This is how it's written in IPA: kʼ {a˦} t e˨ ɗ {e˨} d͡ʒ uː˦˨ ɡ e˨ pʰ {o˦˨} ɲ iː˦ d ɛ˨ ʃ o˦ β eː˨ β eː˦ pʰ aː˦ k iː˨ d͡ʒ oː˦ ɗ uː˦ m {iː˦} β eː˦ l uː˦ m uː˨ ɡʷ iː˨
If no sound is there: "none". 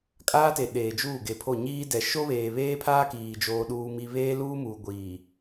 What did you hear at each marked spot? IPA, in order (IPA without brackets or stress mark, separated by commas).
aː˦, eː˨, o˦˨, i˦